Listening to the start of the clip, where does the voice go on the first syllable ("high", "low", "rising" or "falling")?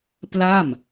falling